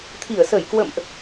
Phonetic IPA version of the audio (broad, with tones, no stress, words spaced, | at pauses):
t̪ʰi˧˩ə̯sə˧˩jkwə̰˧˨mʔ